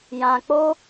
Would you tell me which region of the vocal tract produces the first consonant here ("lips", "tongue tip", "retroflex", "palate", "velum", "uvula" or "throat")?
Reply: palate